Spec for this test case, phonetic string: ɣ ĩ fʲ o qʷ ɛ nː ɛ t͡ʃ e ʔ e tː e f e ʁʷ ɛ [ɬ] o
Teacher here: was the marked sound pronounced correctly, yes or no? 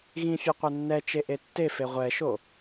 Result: no